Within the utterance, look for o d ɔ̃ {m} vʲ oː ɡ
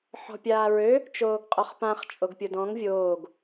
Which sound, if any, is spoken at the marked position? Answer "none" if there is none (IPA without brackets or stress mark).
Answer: ŋ